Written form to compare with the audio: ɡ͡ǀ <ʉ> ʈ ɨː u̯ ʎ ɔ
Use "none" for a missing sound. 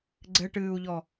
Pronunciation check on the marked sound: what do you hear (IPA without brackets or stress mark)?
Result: ɘ